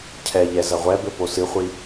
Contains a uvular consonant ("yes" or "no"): yes